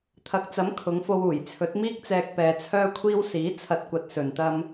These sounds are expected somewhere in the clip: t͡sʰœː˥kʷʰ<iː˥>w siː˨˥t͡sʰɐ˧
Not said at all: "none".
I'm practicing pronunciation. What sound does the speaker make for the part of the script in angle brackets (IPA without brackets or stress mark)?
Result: iː˥